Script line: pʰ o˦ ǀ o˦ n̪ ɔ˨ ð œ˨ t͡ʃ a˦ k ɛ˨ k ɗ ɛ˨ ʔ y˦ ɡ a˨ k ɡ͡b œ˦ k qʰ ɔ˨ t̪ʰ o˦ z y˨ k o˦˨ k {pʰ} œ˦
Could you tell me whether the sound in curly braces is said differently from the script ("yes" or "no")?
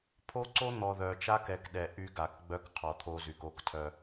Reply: yes